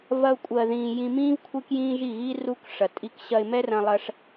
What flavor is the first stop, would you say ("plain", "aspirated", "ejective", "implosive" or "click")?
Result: ejective